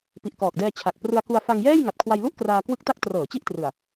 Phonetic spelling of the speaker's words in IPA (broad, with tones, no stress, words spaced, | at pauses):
pi˨˩ʔkɔː˨˩k̚dɛː˧ t͡ɕʰa˨˩k̚ prɯ˧a̯ku˧a̯ fa˧ŋ jɛː˥˩j ŋa˨˩t̚kʰwa˧jlu˥˩ʔkraː˧ kwɯ˦˥k̚ta˦˥k̚ trɤː˩˦ t͡ɕi˥˩ʔtrɯ˨˩a̯